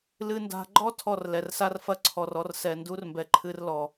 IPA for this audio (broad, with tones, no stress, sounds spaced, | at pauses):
l ɨ˧ n d a̤˧ ɡ͡ǃ ɔ˦ tʰ ɔ˦˨ r l ɛ˨ r s a˦ r f ɐ˦ ǀʰ ɔ˨ r ɔ˧ r s ɛ˨ n d u˦ r m b ɛ˨ ǃʰ ɨ˧ r l ɔ˨